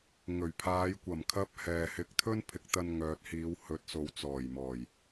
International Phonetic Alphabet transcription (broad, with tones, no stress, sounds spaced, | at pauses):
ŋ ɵ˨˩ ɥ pʰ aː˨˧ j kʷ ɐ˨˩ m kʰ ɐ˧ p̚ h ɛː˨ h ɪ˧ k̚ t̪ʰ ɵ˥ n pʰ ɪ˨˥ k̚ t̪ ɐ˧ n ŋ œː˨ t̚ h iː˨˧ w h ɵ˨˥ t̚ s o˨˧ w t͡s ɔː˨˩ j m ɔː˨˩ j